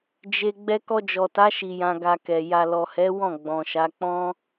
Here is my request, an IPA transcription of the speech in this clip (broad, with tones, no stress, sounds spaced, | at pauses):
d͡ʒ e˧ ɡ͡b ɛ˧ k ɔ˧ d͡ʒ ɔ˨ t a˨˦ ʃ i˧ j ã˧ ɡ a˧ k ɛ˨ j a˨ l ɔ˨ h ɛ˨˦ w ɔ̃˦˨ ɡ͡b ɔ̃˨ ʃ a˨˦ k͡p ɔ̃˦